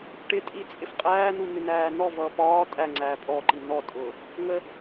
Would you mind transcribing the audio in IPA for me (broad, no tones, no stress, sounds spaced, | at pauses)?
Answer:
ʈ ɪ tʼ i t͡sʼ ɪ f qʼ æː n u n̪ ɪ n æː n ɔ v ʌː p ɒː tʼ æ ŋ͡ǀ æː pʼ ɔ ǃ i n ɔ tʼ ʊː | ŋ ə